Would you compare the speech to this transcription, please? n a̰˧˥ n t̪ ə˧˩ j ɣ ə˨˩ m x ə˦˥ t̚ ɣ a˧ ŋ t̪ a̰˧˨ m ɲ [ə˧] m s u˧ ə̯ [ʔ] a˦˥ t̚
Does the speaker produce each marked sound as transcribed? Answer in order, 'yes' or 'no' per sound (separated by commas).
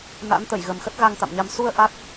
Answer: no, yes